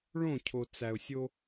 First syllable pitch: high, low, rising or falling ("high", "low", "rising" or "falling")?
falling